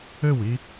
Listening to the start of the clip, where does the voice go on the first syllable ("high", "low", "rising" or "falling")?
falling